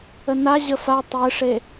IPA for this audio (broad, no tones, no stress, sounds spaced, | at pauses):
ə n a ʑ ə f a tˤ ɨ ʂ e